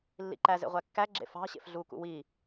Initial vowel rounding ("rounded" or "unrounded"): unrounded